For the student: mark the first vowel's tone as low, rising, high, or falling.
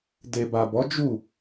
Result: low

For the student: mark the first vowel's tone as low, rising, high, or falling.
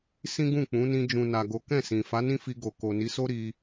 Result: high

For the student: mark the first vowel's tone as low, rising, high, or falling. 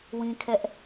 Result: high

